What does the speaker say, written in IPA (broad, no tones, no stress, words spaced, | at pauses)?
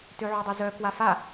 tøʕødˤøzœ kwafa